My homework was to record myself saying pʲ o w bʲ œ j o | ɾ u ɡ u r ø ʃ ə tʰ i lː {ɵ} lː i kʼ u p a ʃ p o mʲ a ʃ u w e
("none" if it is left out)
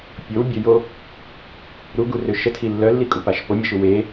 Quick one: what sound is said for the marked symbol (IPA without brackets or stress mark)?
œ